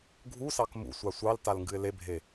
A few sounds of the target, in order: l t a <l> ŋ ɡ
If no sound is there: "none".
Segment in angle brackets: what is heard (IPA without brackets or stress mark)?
l